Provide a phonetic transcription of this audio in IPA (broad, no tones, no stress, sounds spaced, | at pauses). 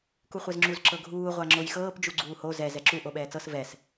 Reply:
k u χʷ ɛ z ŋ͡ǁ u z ǁ ɤ ɡʱ uː ʁʷ a ŋ͡ǁ o j x ɤː p d͡ʒ u ɡ͡ǀ uː h o z ɛ z ɛ ǁ u ʔ o ɓ ɛː t͡s ɤ s v ɛ s